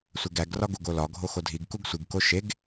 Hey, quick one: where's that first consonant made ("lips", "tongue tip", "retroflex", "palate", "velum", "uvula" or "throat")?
tongue tip